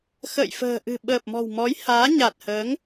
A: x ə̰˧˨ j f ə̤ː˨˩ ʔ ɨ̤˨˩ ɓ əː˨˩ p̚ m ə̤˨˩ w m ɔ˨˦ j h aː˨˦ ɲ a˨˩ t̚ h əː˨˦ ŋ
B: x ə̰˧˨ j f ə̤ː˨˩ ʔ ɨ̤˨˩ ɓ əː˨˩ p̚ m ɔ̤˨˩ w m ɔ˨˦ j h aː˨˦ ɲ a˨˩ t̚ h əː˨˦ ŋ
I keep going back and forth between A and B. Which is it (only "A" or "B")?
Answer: B